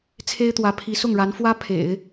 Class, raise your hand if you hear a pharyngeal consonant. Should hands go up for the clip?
no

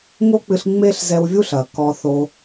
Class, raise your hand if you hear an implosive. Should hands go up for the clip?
no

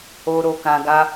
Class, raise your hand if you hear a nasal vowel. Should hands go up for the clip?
yes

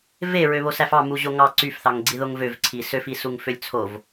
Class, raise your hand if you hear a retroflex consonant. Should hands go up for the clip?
no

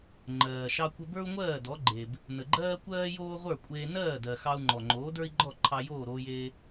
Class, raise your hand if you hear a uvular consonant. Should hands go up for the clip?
yes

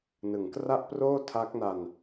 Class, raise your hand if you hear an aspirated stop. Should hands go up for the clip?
yes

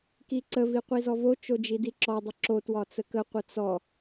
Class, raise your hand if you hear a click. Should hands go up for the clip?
yes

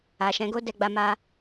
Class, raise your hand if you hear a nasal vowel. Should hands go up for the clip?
yes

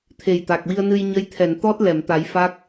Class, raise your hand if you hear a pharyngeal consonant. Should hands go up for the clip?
no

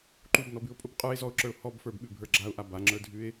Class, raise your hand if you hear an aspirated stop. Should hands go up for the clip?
no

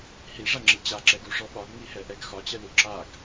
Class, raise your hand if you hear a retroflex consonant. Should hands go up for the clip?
yes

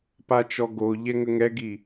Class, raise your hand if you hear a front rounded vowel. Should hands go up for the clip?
no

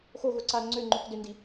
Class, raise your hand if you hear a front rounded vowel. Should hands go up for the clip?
yes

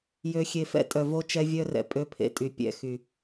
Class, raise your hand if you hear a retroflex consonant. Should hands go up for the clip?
no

